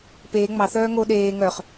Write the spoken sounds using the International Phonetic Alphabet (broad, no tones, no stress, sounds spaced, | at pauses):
p eː ŋ͡m ɑ θ œː ŋ o ɗ eː ŋ œ χ